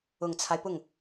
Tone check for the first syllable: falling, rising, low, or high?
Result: low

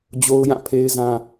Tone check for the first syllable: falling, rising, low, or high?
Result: high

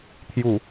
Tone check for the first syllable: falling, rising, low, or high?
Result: low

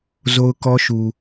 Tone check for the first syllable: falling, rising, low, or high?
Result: high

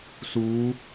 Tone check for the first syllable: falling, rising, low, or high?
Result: rising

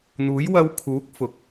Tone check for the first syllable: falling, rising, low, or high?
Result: rising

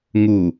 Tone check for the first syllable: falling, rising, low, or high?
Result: low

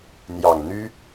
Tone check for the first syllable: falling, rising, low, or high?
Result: low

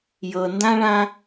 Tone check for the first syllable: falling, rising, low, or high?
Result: low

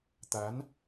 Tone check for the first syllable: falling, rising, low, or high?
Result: rising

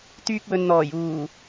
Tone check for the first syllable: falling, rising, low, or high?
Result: high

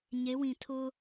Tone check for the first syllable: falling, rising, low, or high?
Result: rising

